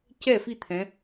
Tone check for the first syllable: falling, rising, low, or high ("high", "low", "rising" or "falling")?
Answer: falling